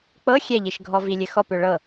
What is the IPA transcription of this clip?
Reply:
k͡pɤ xʲɛʎiʃɡʱɔ vilʲɘxɔp ʏɭɤ

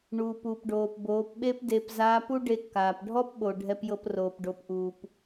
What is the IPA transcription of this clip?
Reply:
ɳuː˩p u˩pɖoː˩p boː˩˧pɓe˥pde˧pzaː˧˥p u˥ɖe˧kːaː˩p ɖʱɔ˥pɓo˩ ɖʱɛ˧pjɤ˧proː˩p ɖo˩˧pʔuː˩p

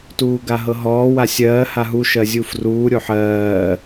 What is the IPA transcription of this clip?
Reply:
tuːɡaɦɤɦɔː wasʲɜː haɦu ʃɜzʲufruː ɾʲoħɜː

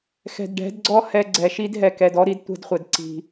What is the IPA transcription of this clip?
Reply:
xɛ̤˨dɖɛ̤˨˦dɡ͡ǀɔ˦ hɛ˨ ɡ͡ǀɛ˨ʃi˦dɦɛ˨ kɛ˨dɔ˦ ɾi˦dtʷɛ̤˦dχʷɛ˨d ǀi̤˨

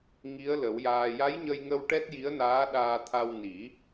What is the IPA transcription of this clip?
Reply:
ŋi˧˥ə̯lə˨˩˦wjaː˧ ja˧˥jɲə˧jŋə˧w ʈɛ˦˥t̚ji˧˥ə̯naː˧˥ ɗaː˧t̪ʰa˧w ni˨˩˦

